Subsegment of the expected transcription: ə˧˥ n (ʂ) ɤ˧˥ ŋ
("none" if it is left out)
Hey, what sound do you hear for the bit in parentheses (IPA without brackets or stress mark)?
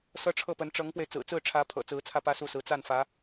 ʈ͡ʂ